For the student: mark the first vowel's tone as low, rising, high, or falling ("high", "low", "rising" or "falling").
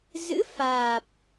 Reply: rising